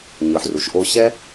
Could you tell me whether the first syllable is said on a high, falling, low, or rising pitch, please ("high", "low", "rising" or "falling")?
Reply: low